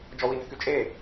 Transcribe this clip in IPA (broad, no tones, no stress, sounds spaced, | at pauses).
d͡ʒ ɔ w i n ɛ̤ k y t͡ʃʼ e